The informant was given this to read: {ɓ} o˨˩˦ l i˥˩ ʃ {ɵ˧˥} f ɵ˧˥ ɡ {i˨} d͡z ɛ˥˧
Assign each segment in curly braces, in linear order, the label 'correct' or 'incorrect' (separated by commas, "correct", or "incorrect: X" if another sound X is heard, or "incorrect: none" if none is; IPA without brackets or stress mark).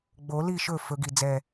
incorrect: ɡ͡b, incorrect: ɵ˥˩, correct